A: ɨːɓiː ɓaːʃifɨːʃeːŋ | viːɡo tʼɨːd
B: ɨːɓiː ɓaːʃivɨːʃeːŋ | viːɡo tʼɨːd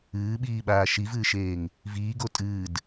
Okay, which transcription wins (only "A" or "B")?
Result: B